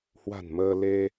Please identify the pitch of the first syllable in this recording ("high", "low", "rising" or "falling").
low